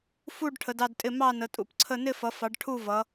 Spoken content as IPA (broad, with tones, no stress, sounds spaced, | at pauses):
f u˦˨ ɖ ʈʰ ə˩˧ d ɑ˦˨ d tʼ ɪ˦˨ m ɑ˦˨ n ə˩˧ tʼ ṵ˩˧ p ǀʰ ə˦˨ n ɪ˦˨ f ʌ˩˧ f ɑ˩˧ ɖ ʈʰ u˦˨ v ʌ˩˧